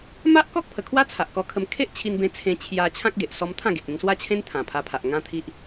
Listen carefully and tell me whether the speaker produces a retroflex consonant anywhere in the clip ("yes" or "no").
no